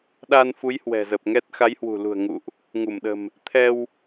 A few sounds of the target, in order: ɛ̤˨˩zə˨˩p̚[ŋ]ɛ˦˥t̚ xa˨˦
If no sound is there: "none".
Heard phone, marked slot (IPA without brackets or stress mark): ŋ